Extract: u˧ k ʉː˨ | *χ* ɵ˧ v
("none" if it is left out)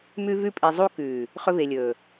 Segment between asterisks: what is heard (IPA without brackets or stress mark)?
χ